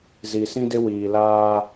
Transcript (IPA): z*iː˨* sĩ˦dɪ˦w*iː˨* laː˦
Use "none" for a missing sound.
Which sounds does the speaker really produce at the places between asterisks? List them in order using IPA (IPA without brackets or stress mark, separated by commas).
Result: i˨, iː˨